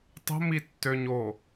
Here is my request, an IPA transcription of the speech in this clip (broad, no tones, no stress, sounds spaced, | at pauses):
tˤ ə̤ m i tː ø ɲ o